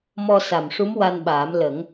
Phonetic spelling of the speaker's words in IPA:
m ɔ˧ s a˨˩ m ʂ u˧˥ m w a˧ n ɓ aː˨˩˦ m l ə˨˩˦ ŋ

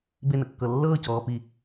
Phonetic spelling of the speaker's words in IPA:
b e n ə kː ɤ lː ɤː c ɔː p i

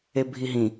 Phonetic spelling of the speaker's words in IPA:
e bʱ i ɦ ĩ

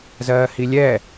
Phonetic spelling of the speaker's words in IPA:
z ɜː h i lʲ ɛ

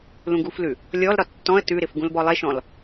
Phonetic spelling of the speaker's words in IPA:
l ũ ɡ u f l ʉ | lʲ ɔ l ɾ ɒ tː ɔ̃ ə̯ t ʉ ɾ ɪ f ɡ ũ l b ɔ lˠ e ʃ ɔ̃ l

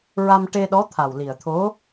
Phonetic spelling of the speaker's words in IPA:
ɹ a˧ m ʈ e˧ ɗ ɔ˧˥ t̪ʰ a˨˩ w l i˨˩ ə̯ t̪ʰ o˧˥

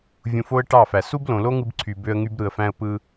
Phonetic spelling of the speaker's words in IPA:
vʲ ũ˧ f o˦ ə̯ ʈ ɑ˦˨ f æ˨ s u˦ b l õ˨ l o˦ ŋ ɯ˧ b ǀʰ y˨ b ø˧ ə̯ ŋ y˧ b ɾ ɯ˨ ə̯ f æ̃˧ ə̯ p ɯ˧

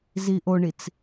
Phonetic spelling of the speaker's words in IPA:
z i ʔ o ɳ i t͡s

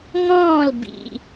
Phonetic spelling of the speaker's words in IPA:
ŋ ɔ̃ː˥˩ l b ḭ˩

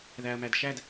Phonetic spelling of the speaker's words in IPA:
ð æ ɐ̯ m æ d ʃ æ d

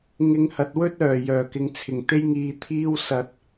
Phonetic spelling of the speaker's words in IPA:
ŋ ɪ˧ ŋ h ɐ˨˥ t̚ w ɵ˥ t̚ œː˨˩ j œː˨˩ k ɪ˨ ŋ t͡sʰ ɪ˨˩ ŋ t̪ e˥ j ŋ iː˧ t̪ʰ iː˥ w s ɐ˧ t̚

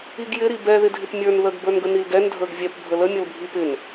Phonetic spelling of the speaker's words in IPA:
i ɡ j ɪ ɾ i b ɛ ð ɪ dʱ ɪ p mʲ ə˞ n ð ə ɡ b ə˞ n ɡ ə n i l ɡ ɛ n dʱ ə˞ ɡ vʲ ɛ p bʱ ə l ə mʲ ʌ l bʱ i p ɪ n

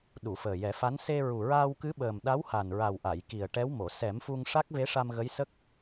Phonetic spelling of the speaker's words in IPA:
ɗ u˨˩˨ f əː˨˩ j ɛ˨˩˦ f a˧˥ n s e˧ ɹ u˨˩ ɹ aː˧ w k ɨ˧˥ ɓ əː˨˩ m ɗ a˧˥ w h a˨˩ n ɹ a˨˩ w ʔ a˨˩˨ j k i˨˩ ə̯ ʈ ɛ˧˥ w m o˨˩˨ s ɛ˨˩˦ m f u˧ ŋ ʂ a˦˥ k̚ v e˧˥ ʂ a˧ m ɣ ə˧˥ j s ə˦˥ k̚

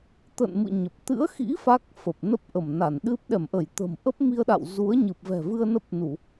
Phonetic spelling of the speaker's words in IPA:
t̪ ə̰˧˨ n m ɨ̰˧˨ ɲ ə˨˩ p̚ t̪ ɨ̰˧˥ ə̯ x ḭ˧˥ f aː˦˥ k̚ f ə˨˩ p̚ n ə˦˥ p̚ ʔ ə˧˩ m n a˧˩ n ɗ ɨ˦˥ p̚ ɗ ɛ˧˩ m ʔ ə˧˩ j t̪ ə̤˨˩ m ʔ ə˦˥ p̚ m i˧ ə̯ ɗ a̰˧˨ w z u˨˦ ə̯ ɲ ɨ˨˩ p̚ v ɛ̤˨˩ v ɨ˧ ə̯ n ə˦˥ p̚ n u˧˩˨

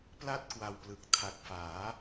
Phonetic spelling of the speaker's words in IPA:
p l a˥˩ t̚ k w a˧ w p l ɯ˨˩ k̚ tʰ a˨˩ k̚ f aː˩˦

